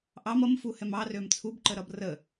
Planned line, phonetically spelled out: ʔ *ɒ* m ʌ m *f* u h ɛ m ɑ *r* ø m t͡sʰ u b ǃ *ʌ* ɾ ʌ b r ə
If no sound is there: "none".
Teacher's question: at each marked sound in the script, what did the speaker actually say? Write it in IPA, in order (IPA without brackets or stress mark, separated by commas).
ɑ, f, r, ə